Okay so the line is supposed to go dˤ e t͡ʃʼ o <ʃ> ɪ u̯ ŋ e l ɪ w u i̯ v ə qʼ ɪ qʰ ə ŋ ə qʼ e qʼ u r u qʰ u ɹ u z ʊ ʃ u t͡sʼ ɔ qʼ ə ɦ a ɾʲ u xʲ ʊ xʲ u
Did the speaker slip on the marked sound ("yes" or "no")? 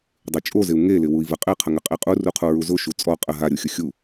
yes